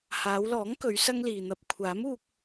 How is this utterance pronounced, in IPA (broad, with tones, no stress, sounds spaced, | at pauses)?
h aː˨˧ w l ɔː˨˥ ŋ k ɵ˨˧ ɥ s ɐ˧ ŋ l iː˨ n̪ ɐ˧ p̚ kʷʰ aː˨˥ m uː˧ k̚